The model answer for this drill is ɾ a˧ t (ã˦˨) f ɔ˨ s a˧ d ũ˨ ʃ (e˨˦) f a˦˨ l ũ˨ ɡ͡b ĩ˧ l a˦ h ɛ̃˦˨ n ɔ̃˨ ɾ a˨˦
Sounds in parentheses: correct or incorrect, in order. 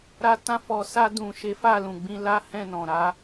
incorrect, correct

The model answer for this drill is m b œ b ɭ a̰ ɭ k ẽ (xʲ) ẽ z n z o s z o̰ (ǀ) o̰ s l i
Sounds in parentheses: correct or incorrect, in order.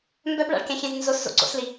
correct, correct

